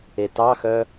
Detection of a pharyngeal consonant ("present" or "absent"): absent